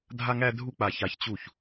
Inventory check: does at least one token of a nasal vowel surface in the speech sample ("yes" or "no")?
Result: no